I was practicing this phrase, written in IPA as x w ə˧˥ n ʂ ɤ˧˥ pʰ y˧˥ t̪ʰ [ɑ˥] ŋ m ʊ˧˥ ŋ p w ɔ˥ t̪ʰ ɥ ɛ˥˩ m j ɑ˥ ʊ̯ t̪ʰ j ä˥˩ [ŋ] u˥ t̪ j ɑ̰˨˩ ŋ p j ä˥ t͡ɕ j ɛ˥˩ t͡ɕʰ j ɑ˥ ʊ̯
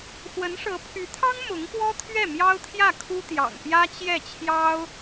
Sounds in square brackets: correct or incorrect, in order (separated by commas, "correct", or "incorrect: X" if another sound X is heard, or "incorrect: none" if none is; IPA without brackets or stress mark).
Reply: correct, incorrect: kʰ